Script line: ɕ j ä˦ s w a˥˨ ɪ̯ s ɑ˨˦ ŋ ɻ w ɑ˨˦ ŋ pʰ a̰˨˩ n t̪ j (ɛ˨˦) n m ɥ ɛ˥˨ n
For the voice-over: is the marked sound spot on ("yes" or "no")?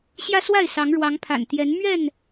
yes